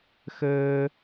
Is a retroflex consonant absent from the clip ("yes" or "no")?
yes